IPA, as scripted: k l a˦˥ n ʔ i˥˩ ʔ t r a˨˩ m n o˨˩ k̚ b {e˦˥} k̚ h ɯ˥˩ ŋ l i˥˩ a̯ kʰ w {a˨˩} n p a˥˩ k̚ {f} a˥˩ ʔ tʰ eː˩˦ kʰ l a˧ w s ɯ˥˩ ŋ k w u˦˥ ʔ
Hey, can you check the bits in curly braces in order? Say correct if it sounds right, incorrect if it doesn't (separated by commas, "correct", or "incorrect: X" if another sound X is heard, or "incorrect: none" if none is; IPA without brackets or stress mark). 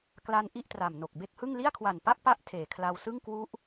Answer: correct, correct, incorrect: p